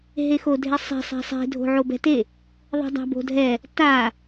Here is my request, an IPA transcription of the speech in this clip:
ɦ e x o dʱ e sˤ e̤ sˤ ɛ̤ sˤ e̤ dʱ o̤ ʕ o b ɛ̤ t e | ðˤ ɛ̤ dˤ a̤ b o̤ dʱ ɛ | t a

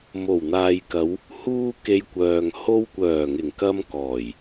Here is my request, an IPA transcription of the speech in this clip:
m o˨˩ w n̪ aː˨ j k ɐ˨˧ w | h uː˧ k e˧ j kʷ œː˨ ŋ h o˥ w kʷ œː˨˩ ŋ ɪ˨˩ ŋ k ɐ˧ m k ɔː˨˩ j

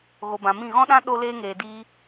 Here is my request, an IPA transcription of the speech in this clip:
ɣ o˨ b ã˨ m ĩ˦˨ ɣ ɔ̃˦ ɗ ã˦ ɗ o˧ l eː˧ ŋ eː˨ d iː˧

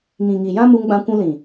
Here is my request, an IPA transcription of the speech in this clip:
ŋ ĩ˨ ŋ i˨ j ã˦ m u˧ ŋ ɡ͡b ã˧ kʷ ũ˧ l ĩ˨

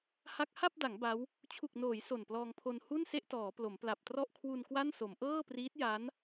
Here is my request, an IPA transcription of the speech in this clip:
h a˦˥ k̚ h a˥˩ p̚ d a˩˦ ŋ b a˦˥ w | t͡ɕʰ u˨˩ k̚ n oː˩˦ j s o˨˩ n p l ɔː˧ ŋ pʰ o˧ n h u˥˩ n s e˥˩ ʔ t ɔː˩˦ p l o˩˦ m p l a˨˩ p̚ t r ɔ˥˩ ʔ kʰ w u˧ n k w a˥˩ n s o˩˦ m ʔ ɤː˥˩ p r iː˦˥ t̚ j a˦˥ n

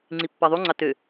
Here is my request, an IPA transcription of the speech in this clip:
ŋ͡ǀ i pː ɑ ðˤ u ŋ͡ǀ ɑ t ø

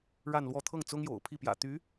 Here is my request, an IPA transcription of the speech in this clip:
ɻ a˥˧ n l w ɔ˥˧ t̪ʰ ɤ˥˩ ŋ t͡s ʊ˥ ŋ j o̰˨˩ ʊ̯ pʰ i˥˩ p j ä̰˨˩ t̪ y˧˥

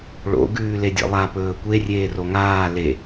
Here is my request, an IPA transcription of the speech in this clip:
ɭ o̰ ɡ ʉː l e dʲ ḛ lˠ a p ɵː kʷ e rʲ eː r o ŋ aː l e

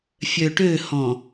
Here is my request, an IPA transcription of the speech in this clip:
fʲ œ ʈ ø h ɔ̃

